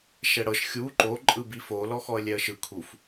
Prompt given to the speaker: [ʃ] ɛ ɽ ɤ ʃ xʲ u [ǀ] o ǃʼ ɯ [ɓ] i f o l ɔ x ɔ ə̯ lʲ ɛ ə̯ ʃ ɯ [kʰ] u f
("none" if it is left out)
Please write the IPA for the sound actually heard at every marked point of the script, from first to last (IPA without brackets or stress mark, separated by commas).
ʃ, ǃ, b, kʰ